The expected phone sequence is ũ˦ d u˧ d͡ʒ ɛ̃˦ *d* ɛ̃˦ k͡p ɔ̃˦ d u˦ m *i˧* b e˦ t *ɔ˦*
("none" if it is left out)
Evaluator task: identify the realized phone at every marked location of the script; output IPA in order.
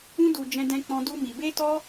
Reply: d, i˧, ɔ˦

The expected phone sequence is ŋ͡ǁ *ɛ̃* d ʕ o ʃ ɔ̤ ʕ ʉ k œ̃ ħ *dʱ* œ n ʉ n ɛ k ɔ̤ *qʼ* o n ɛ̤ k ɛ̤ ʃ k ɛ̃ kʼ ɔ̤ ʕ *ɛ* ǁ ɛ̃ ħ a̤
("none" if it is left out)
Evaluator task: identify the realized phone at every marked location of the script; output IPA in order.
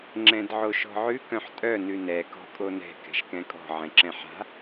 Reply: ɛ̃, tʼ, kʼ, ɛ̃

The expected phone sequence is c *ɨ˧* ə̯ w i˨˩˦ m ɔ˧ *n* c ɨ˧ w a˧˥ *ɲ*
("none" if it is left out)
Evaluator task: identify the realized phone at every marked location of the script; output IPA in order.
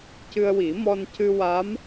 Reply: ɨ˧, n, m

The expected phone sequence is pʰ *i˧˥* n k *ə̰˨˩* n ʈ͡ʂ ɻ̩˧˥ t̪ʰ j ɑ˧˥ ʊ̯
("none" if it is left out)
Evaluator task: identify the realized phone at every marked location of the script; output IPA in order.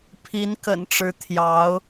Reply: i˧˥, ə̰˨˩

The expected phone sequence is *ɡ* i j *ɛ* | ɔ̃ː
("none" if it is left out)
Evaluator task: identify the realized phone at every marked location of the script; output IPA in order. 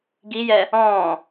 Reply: ɡ, ɛ

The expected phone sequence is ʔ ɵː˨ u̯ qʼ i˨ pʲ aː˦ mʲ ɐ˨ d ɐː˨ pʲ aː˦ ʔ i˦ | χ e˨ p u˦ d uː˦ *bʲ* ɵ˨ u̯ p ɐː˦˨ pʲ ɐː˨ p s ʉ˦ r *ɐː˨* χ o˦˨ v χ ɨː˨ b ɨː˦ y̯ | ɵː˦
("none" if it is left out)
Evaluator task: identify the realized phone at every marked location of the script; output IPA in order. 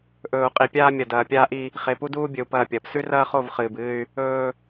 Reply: bʲ, ɐː˦

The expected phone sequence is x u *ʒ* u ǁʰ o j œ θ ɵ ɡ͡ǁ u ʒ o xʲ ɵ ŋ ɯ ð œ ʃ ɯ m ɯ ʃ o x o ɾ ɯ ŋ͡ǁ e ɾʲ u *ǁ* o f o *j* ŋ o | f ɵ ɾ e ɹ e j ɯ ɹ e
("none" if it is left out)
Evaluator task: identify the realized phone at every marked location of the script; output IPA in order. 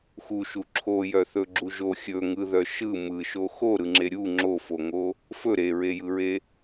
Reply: ʃ, ŋ͡ǁ, none

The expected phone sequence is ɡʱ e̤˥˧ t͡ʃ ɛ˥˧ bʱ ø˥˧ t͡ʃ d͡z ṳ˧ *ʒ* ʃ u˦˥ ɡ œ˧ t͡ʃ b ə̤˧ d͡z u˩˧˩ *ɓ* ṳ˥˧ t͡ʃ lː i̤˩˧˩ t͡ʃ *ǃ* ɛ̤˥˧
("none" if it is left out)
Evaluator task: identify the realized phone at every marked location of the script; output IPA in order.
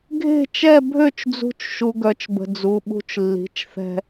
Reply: t͡ʃ, ɓ, θ

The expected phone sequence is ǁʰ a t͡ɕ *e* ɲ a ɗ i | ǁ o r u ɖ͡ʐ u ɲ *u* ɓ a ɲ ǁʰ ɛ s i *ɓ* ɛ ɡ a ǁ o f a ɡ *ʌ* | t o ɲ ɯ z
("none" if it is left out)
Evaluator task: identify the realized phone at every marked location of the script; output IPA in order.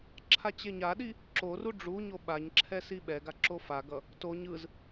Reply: e, o, ɓ, ʌ

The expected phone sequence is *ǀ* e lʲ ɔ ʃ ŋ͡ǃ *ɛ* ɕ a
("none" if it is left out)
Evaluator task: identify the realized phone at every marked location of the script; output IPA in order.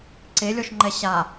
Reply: ǀ, ɛ

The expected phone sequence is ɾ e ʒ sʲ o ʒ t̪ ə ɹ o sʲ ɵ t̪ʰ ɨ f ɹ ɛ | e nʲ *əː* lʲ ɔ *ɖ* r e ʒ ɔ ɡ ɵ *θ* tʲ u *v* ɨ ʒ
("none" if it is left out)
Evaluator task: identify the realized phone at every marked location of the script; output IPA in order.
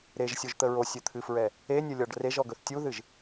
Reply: ə, ɖ, θ, ð

